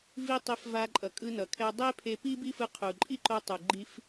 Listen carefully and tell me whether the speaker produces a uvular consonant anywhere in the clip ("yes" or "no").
yes